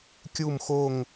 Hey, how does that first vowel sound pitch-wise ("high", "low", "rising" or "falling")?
falling